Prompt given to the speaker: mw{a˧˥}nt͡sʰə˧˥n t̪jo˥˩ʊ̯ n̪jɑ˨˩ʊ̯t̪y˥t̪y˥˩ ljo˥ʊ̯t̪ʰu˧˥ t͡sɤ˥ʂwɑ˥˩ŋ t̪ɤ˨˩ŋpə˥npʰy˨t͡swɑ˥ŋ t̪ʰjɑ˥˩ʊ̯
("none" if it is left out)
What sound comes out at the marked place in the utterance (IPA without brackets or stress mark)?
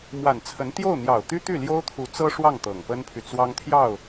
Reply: a˨˩